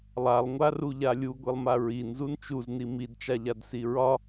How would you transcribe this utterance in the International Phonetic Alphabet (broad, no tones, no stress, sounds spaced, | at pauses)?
lˠ a lˠ ŋʷ a r u ʎ a lʲ u ɡʷ i lˠ m a ɹ i n z u n t͡ʃ u z n i m i d t͡ʃ a ʎ a d s i ɹ ɒ